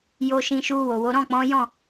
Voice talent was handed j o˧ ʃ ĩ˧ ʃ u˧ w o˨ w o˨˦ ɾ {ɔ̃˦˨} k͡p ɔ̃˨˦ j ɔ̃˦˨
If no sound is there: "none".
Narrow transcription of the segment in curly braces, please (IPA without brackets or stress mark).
ɔ̃˦˨